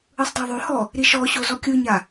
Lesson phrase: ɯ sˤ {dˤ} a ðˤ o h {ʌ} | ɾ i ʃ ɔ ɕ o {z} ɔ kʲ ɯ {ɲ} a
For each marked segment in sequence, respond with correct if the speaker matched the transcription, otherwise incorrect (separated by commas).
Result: correct, incorrect, correct, correct